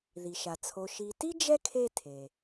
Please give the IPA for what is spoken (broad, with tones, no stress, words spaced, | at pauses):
ði˩ʃa˩t͡sʰo˨ ʃi˨ti˥ d͡ʒɛ˥kʰe˦ tʰe˩